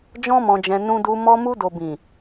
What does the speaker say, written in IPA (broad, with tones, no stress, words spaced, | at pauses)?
d͡ʒɔ̃˦mɔ̃˧d͡ʒɛ̃˧ nũ˧du˧ mɔ˧mu˧do˨ bĩ˨